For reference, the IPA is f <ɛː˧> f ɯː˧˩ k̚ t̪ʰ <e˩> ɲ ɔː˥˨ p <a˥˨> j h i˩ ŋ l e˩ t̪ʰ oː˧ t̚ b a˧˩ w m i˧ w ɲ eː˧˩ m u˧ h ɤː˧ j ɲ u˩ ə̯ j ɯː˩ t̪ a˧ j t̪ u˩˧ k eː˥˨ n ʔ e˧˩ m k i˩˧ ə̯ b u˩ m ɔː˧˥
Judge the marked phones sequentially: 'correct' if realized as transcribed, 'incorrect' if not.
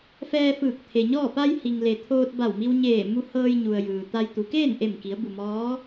correct, correct, incorrect

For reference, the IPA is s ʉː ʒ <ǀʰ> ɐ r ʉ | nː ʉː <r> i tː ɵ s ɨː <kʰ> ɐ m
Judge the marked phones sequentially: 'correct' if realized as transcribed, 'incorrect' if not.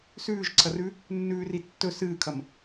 correct, correct, correct

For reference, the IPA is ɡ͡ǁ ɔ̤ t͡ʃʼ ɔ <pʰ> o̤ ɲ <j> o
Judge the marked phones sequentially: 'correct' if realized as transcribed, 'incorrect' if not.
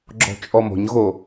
incorrect, incorrect

